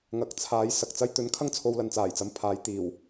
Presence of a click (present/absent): absent